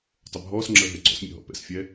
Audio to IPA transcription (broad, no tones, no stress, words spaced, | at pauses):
tˤəbʱɔːsŋ͡ǁəː ɦɛɡ͡ǀɔ̰smʲə̰ ɦɔ̰pɛ̰sfʲɛ